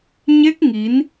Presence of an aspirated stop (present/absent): absent